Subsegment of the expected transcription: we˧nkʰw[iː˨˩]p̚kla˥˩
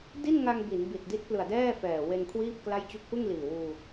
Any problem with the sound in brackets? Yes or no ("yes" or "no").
yes